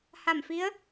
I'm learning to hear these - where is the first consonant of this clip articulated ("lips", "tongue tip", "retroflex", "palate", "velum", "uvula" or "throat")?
throat